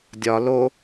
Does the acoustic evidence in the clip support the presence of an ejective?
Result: no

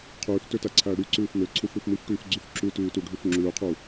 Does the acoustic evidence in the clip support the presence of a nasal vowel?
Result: no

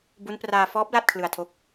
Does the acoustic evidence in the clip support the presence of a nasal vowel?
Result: no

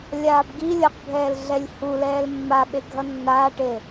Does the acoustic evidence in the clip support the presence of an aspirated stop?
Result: no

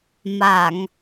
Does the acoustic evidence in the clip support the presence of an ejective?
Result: no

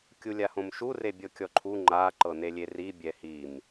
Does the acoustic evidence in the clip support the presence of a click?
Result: yes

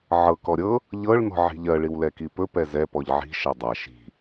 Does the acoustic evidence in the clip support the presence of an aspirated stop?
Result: no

